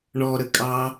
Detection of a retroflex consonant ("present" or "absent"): present